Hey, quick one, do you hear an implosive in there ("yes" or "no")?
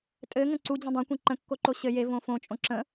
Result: no